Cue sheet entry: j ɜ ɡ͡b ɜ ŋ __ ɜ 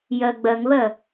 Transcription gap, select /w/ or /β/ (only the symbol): β